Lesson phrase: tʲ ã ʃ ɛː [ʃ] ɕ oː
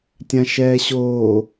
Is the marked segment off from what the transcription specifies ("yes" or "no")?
yes